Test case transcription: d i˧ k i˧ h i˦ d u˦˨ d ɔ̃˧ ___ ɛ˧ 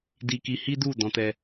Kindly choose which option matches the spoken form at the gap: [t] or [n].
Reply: t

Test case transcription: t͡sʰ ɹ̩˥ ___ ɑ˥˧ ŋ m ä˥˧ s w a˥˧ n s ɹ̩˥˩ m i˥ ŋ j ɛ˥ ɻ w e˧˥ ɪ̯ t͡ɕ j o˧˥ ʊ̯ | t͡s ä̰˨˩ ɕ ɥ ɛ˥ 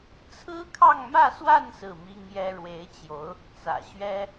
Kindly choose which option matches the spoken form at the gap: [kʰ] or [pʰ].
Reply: kʰ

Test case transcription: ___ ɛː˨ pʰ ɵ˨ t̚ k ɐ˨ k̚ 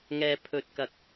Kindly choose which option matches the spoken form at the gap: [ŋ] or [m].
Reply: ŋ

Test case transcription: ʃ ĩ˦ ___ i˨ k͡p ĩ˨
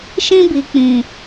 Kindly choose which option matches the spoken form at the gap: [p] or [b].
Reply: b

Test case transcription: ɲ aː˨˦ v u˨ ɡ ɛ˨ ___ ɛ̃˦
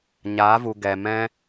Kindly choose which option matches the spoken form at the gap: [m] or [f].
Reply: m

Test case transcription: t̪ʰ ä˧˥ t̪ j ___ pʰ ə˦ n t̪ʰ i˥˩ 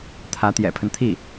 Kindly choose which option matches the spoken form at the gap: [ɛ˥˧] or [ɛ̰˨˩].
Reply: ɛ̰˨˩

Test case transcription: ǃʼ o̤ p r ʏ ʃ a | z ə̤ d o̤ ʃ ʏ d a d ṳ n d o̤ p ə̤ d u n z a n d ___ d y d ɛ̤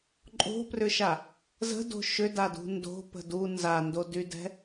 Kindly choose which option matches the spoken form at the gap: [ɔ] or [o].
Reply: o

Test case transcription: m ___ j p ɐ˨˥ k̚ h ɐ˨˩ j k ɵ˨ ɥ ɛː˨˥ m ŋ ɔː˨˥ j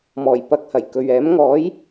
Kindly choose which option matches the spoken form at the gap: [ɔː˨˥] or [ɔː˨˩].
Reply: ɔː˨˩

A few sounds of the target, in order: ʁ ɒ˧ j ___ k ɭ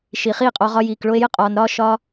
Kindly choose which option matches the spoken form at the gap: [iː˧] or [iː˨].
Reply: iː˨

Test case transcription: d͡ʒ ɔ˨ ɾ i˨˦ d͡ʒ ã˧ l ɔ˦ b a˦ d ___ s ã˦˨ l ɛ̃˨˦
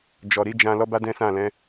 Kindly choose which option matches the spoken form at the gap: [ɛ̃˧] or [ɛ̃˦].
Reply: ɛ̃˦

